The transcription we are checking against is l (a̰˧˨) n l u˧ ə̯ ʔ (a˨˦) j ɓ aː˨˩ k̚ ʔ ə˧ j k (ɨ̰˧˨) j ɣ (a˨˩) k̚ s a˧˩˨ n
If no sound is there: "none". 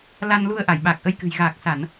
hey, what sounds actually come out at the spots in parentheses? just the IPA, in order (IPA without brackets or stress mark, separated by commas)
a˧, a˧˩, ɨ̤˨˩, aː˨˩